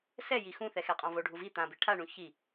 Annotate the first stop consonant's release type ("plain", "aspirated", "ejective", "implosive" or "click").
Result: ejective